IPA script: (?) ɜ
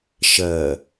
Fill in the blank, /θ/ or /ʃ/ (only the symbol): ʃ